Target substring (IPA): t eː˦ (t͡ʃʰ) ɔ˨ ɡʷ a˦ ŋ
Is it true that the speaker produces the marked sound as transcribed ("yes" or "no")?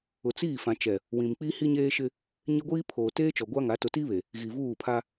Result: no